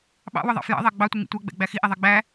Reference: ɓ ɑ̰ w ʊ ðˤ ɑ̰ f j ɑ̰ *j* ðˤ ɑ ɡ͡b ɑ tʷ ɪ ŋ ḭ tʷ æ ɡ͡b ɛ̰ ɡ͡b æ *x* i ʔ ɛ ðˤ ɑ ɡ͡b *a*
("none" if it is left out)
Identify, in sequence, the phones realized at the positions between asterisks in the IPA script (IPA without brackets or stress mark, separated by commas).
none, x, æ